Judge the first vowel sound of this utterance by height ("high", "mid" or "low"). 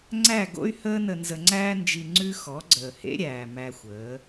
low